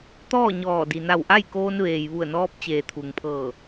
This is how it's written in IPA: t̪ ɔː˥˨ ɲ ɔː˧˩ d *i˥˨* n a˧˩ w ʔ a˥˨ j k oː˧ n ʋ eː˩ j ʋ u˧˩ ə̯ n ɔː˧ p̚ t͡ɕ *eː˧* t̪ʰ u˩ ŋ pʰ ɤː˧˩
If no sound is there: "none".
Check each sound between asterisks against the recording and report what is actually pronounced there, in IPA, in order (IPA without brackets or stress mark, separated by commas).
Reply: i˩, eː˩